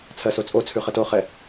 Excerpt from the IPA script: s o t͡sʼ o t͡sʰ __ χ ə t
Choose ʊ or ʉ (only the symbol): ʉ